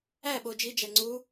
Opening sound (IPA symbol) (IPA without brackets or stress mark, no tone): æ